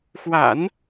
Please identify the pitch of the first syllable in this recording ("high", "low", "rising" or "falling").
low